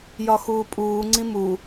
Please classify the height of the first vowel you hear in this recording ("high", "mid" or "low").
low